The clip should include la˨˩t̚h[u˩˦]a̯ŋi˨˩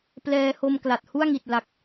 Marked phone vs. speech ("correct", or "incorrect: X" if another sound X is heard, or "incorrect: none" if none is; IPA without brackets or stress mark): incorrect: u˥˩